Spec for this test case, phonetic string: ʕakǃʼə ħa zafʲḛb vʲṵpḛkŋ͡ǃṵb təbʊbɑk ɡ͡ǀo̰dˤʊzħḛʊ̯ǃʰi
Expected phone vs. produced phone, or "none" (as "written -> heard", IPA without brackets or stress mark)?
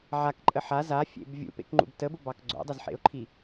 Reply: none